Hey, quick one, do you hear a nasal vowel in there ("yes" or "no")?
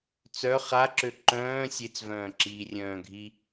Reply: yes